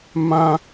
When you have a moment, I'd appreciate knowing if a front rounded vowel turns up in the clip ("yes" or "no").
no